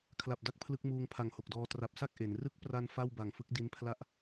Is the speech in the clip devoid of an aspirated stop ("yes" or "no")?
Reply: no